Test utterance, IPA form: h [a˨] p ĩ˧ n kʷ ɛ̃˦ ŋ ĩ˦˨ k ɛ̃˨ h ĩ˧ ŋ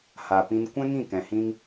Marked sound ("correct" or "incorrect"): correct